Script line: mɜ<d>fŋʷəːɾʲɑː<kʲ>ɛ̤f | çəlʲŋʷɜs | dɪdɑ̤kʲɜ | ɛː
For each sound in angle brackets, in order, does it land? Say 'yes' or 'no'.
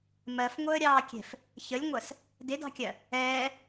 no, yes

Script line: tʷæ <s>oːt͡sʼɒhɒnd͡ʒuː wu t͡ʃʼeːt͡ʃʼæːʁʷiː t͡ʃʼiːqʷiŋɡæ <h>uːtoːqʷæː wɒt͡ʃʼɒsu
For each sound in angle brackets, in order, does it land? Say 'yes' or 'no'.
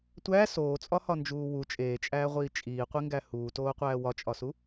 yes, yes

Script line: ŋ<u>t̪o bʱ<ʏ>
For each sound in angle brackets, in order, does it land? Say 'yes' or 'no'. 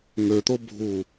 no, no

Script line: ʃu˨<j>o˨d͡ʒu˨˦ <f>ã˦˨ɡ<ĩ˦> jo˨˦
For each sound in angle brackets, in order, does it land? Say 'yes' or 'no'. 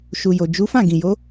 yes, yes, no

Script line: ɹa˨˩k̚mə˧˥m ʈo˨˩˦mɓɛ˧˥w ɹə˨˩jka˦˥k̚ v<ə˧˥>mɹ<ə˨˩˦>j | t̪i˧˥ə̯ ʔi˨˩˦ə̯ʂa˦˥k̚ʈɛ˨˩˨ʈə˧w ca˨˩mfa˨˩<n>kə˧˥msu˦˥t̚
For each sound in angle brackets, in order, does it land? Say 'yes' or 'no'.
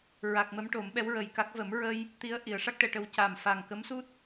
no, no, no

